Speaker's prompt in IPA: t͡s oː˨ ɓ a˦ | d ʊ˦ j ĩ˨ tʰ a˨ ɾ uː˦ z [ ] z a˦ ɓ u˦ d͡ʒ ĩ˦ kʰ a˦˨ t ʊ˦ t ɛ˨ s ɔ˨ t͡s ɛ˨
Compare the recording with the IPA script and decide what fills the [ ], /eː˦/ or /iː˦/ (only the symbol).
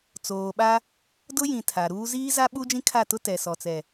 iː˦